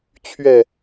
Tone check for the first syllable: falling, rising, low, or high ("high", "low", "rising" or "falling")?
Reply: falling